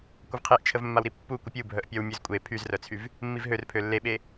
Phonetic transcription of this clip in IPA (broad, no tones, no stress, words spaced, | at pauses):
kʷəvqʰeʔt͡ʃʰəvmːaw ɾipːukʷə pʲubʱœʔ pʲɔwmʲøzkʷʼe pʰyzrœt͡sʰyv | mːivɦør pʰølːeɓe